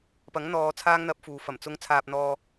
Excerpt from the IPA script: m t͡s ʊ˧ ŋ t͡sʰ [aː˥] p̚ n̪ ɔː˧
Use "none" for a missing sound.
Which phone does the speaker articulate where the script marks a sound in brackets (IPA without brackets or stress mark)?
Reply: aː˧